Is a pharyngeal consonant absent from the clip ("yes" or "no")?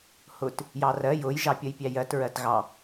yes